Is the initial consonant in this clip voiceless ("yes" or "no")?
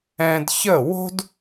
no